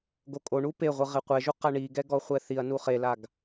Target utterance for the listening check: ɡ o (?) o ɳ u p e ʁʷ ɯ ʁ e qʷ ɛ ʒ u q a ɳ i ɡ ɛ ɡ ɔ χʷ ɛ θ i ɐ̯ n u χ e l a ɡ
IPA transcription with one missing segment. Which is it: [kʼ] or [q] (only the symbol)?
kʼ